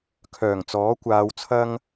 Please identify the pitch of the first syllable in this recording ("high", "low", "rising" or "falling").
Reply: low